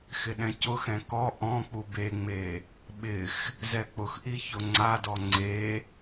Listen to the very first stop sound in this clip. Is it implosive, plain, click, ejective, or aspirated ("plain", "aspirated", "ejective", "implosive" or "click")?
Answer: implosive